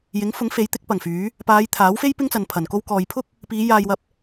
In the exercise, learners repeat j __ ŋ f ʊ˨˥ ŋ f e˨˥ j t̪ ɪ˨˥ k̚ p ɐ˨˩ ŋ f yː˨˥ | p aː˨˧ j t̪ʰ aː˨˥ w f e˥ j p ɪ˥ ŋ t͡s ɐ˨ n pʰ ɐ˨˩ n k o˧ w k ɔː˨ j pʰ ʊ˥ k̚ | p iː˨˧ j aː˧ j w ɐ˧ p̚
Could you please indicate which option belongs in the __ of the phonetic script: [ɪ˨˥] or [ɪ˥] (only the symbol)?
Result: ɪ˨˥